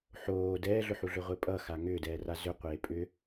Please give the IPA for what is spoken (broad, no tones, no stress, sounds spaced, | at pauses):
ħ oː d ɛː ɮ ʏ ħ u ɮ ʏ ʁʷ e pʼ ʌ x a ŋ ʏː d ɛː r a z ʏ qʷ eː pʼ ʏ